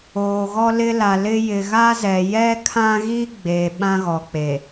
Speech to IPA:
oː˨ ɣ ɔ˦ l ɪ˦ l a˨ l ɪ˦ j ɪ˨ ɣ a˦ z ɛ˨ j ɛ˦ kʰ ã˦ ɣ i˦ ɡ͡b eː˨ ɓ ã˦ ɣ ɔ˨ k͡p e˨

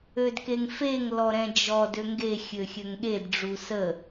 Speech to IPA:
ø d k e ŋ f e ŋ l ɔ ɾ ɛ̃ d͡ʒ ɔ d ø ŋ ɡ e xʲ ø xʲ ø ŋ ɠ e d ɖ͡ʐ u s ə

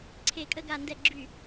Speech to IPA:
ǀʰ e˧˩˧ kʼ ə˦˨ ɡ a˧˩˧ n d ɛ˧˩˧ ɡ͡ǁ y˧˩˧

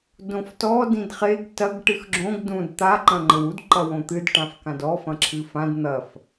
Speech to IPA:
d õ f t ɔ d ĩ d χ e ɡ t ɐ ɡ ʈ ɨ x ɡ͡ǁ õ ɡ d ũ d t̪ a ǃ ɐ̃ ŋ͡ǃ ɘ w u d ǃ ɐ w õ t̪ ɨ d ʈ ã f k ã d ɔ f ɐ̃ ǁʰ ɨ f ã d n̪ ɐ f

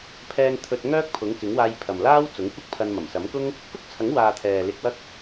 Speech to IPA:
pʰ ɛː˧ ŋ t̪ʰ ɵ˧ t̚ ŋ œː˥ k̚ pʰ ʊ˨˥ ŋ k ɪ˨˥ ŋ w aː˧ j pʰ ɐ˨ m l aː˥ w t͡s ʊ˨˥ ŋ kʷ ɪ˥ k̚ pʰ ɐ˧ n m ɐ˨˩ m s ɐ˨˥ m k ʊ˥ ŋ | k ʊ˥ k̚ t͡sʰ ɐ˨˥ ŋ w aː˨ t̪ʰ ɛː˨ l ɪ˧ k̚ w ɐ˥ k̚

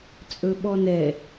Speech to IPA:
t͡sʼ ɵ ɓ ɔ n ɛ

